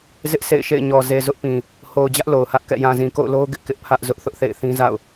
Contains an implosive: no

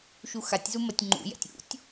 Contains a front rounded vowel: no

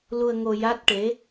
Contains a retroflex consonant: yes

